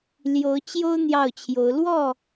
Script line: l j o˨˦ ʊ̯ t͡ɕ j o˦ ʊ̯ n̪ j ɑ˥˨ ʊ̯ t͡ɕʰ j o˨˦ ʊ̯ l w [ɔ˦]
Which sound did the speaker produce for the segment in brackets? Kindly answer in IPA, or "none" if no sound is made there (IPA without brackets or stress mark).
ɔ˥˨